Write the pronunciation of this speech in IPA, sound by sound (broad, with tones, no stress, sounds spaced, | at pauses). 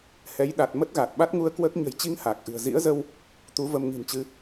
h ɛ˨˦ j ɗ a˨˩ t̚ m ə˦˥ t̚ ɣ a˨˩ t̚ ɓ a˦˥ t̚ ŋ u˧ ə̯ k w əː˦˥ k̚ ɲ ə̤˨˩ j t͡ɕ i˧ ŋ h aː˨˩ k̚ ʔ ɨ̤˨˩ ə̯ z ḭ˧˥ ə̯ z ə˧ w | t̪ u˨˦ v ə˧ m ŋ i̤˨˩ n t͡ɕ ɨ˨˦